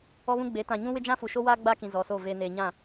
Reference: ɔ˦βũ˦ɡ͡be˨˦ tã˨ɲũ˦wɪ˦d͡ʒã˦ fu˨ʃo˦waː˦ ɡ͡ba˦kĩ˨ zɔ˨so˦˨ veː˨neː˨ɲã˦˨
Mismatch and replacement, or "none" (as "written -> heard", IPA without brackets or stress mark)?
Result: none